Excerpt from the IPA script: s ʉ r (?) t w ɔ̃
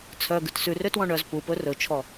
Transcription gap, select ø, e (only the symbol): ø